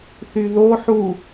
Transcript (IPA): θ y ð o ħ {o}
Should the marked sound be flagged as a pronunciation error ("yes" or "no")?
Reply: yes